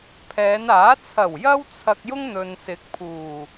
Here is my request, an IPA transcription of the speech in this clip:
pʰ ɛː˨˧ n aː˨˥ t͡sʰ ɐ˨˩ w j ɐ˧ w t͡sʰ ɐ˧ k̚ j ʊ˥ ŋ n̪ ɵ˨ n s ɪ˨˥ k̚ pʰ uː˨˩

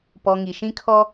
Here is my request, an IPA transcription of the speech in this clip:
p ɔ˨ ŋ i˨ ʃ ĩ˦ kʰ ɔ˦

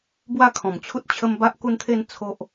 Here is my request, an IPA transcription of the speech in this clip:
b w a˥˧ kʰ ɔ̃˨˩ m t͡ɕʰ u˦ t̚ t͡ɕʰ ə˦ m b a˦ ʔ k u˦ n t̪ʰ e˥˧ n t͡sʰ o˦ ʔ

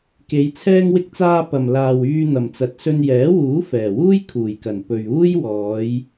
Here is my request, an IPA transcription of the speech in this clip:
k e˨˧ j t͡sʰ ɛː˥ ŋ w ɪ˧ k̚ t͡s aː˧ p ɐ˨ m l aː˨ w yː˧ n̪ ɐ˨˩ m t͡s ɐ˨ t̚ s ɵ˧ n j ɛː˨˥ w uː˨˥ f ɛː˨˩ w uː˥ j kʰ uː˨˩ j k ɐ˨˩ n p ɵ˨ ɥ uː˥ j w ɔː˨˧ j

